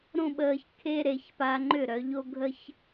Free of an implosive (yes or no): no